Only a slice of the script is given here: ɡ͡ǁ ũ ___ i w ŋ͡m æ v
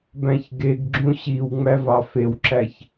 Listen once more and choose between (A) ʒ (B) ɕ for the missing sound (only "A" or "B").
B